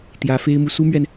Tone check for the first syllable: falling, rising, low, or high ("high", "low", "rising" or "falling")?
rising